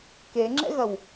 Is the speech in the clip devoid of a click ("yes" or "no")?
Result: no